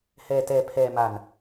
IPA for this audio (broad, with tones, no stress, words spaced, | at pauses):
hɛː˧tɛː˧ pʰɛː˧ma˧n